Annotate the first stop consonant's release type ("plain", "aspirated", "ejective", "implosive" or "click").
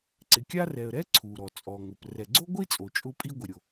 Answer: click